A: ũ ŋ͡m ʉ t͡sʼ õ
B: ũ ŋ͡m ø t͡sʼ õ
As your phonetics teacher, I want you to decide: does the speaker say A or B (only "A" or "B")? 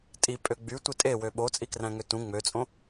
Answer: B